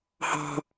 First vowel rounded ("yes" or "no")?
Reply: no